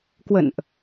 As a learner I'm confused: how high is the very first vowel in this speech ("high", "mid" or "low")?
mid